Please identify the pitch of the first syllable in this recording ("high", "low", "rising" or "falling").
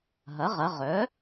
rising